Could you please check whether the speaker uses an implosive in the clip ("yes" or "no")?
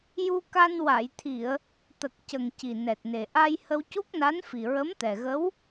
no